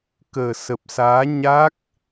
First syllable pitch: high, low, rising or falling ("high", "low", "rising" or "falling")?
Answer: low